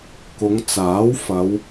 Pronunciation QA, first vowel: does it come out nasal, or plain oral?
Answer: oral